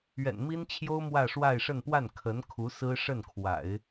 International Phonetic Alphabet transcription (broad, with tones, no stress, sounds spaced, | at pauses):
ɥ ɛ̰˨˩ n m i˥ n t͡ɕʰ j o˥ ʊ̯ m w ä˥˧ ʂ w a˥˧ ɪ̯ ʂ ə˥˧ n p w a˥˩ n kʰ ə˧˥ n kʰ u˧˥ s ɹ̩˥ ʂ ə˥˩ n kʰ w a̰˨˩˦ ɪ̯